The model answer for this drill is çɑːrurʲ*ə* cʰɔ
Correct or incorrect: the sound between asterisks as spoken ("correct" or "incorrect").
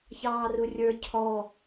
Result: incorrect